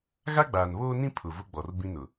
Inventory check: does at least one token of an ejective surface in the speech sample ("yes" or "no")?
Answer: no